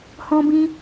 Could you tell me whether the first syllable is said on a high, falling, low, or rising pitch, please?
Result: high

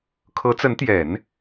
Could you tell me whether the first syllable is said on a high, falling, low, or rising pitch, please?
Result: rising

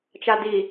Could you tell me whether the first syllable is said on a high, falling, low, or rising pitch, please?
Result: low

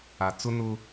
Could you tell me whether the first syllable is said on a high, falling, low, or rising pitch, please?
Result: low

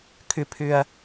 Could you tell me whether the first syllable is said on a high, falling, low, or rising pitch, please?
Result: low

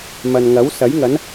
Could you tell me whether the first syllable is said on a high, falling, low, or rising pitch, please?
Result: low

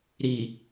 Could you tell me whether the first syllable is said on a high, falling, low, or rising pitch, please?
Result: low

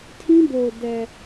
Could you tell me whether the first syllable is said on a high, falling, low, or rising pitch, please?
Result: high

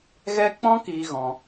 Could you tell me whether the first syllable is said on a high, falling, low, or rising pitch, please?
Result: high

